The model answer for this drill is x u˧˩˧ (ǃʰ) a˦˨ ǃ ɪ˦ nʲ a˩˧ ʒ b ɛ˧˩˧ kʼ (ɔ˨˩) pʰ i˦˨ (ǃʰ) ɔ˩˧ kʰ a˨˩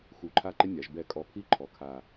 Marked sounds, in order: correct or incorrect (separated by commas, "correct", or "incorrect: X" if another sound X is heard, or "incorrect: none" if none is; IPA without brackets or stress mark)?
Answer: correct, correct, correct